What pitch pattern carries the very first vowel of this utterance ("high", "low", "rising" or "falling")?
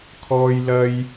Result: high